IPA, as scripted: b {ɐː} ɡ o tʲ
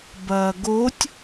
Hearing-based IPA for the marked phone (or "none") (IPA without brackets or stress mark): ɐː